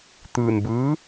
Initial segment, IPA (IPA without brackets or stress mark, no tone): t̪